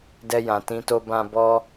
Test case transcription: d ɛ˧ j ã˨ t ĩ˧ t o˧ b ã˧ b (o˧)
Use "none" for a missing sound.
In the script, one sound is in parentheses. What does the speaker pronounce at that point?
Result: ɔ˧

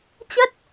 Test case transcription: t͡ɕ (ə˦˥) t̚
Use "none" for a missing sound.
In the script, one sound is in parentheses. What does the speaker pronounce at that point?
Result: ə˦˥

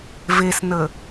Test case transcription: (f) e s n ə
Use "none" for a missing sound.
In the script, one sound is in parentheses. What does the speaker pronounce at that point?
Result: v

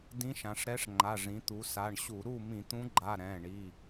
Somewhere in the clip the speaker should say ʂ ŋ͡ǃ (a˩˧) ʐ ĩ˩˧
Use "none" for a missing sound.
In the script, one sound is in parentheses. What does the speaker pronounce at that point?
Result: a˩˧˩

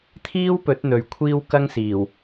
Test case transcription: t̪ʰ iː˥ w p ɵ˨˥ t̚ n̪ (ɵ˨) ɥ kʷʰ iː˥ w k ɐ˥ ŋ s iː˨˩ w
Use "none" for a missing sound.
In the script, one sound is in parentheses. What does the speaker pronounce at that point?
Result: ɵ˨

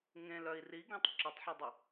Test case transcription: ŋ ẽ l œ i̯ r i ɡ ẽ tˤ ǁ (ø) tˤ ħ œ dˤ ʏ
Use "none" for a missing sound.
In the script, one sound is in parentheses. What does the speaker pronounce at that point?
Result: ə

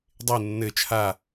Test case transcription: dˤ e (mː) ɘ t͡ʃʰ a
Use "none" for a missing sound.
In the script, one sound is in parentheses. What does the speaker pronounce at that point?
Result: nː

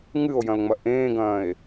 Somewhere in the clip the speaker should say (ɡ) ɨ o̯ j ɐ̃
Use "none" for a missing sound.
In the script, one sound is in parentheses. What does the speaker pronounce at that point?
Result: ŋ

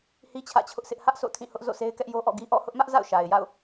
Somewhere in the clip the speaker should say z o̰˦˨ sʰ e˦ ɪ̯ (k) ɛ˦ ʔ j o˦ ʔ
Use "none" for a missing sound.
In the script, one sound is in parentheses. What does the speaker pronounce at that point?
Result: k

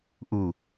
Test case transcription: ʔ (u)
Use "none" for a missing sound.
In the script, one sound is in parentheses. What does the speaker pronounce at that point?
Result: u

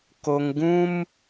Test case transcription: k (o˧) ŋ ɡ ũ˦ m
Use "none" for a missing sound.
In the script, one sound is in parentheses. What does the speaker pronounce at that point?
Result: o˧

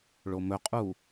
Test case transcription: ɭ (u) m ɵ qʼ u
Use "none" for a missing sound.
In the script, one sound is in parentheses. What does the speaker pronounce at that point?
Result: o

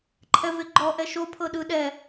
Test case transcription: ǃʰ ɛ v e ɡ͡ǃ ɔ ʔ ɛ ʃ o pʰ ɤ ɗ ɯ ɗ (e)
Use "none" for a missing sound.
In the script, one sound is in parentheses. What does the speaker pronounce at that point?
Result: ɛ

